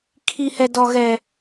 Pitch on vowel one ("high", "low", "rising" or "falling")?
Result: high